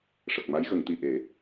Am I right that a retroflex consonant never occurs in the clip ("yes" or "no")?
no